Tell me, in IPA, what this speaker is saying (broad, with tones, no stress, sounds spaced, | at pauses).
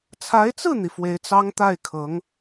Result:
t͡sʰ a˧˥ ɪ̯ t͡s ɹ̩˥˩ n̪ i˩ f w e˧˥ ɪ̯ t͡s ɑ˥ ŋ t̪ a˥˩ ɪ̯ kʰ ɤ˧˥ ŋ